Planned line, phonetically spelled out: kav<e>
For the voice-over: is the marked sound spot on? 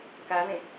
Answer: no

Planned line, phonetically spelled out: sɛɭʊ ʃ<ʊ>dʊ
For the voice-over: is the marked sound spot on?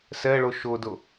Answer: yes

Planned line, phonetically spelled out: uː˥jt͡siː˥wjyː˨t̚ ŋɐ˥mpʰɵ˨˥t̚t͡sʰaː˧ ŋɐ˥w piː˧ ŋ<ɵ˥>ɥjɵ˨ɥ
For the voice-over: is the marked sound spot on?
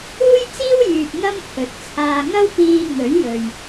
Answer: no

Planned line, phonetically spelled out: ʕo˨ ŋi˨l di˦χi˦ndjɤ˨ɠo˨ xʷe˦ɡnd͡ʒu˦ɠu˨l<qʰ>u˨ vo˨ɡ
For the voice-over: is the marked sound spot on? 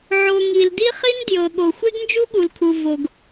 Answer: no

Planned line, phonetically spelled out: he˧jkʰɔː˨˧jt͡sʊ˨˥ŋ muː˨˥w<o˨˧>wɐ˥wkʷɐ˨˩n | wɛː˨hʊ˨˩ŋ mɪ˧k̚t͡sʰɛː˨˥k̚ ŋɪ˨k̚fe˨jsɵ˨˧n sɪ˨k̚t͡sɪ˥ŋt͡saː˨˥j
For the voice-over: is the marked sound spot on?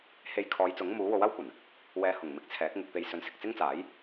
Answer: no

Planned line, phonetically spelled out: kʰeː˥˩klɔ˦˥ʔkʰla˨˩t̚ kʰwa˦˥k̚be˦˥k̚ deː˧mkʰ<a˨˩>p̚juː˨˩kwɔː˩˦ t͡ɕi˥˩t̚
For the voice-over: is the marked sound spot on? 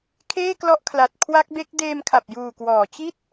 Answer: yes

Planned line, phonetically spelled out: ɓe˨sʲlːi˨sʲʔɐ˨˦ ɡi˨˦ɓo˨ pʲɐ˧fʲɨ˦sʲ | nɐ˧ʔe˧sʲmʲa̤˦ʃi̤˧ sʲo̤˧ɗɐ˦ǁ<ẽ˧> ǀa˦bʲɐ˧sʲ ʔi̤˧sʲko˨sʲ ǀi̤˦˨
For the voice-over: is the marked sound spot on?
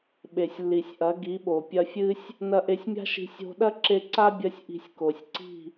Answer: no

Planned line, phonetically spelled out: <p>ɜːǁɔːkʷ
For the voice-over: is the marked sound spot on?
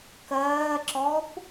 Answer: no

